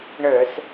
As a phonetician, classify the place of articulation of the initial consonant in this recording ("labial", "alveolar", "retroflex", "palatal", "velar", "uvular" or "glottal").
retroflex